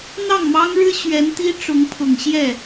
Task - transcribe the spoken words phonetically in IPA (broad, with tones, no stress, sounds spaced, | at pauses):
n̪ ɑ˥˩ ŋ m ɑ˥ ŋ ɻ ɻ̩˥ ɕ ɥ ɛ˧˥ n t̪ i˥ ʈ͡ʂ ʊ˧˥ ŋ pʰ ʊ˨˩ ŋ ɕ j ɛ˥˩